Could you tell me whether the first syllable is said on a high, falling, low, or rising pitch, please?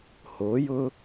rising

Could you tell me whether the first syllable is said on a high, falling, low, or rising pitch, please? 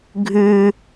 high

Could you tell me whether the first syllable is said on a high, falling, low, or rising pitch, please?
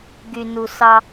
low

